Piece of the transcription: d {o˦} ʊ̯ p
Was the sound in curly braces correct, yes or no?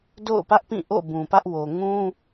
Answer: no